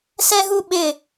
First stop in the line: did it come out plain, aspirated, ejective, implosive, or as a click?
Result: implosive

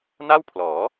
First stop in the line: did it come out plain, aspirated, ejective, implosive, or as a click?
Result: aspirated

